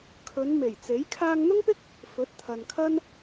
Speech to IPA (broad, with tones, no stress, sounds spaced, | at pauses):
kʰ ɵ˨˧ n m e˨˩ j t͡s e˨˥ j kʰ aː˧ ŋ n̪ ʊ˥ ŋ p ɪ˥ k̚ | f ɵ˨˥ t̚ t̪ʰ ɐ˨ n kʰ ɐ˥ n